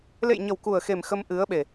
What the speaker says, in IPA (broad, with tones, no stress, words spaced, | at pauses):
lḛ˧˨jɲə˨˩wku˨˩ə̯xe˨˩m xə˧mʔɨ˨˦ə̯ɓe˨˩